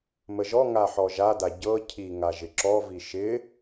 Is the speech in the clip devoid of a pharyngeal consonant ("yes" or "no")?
no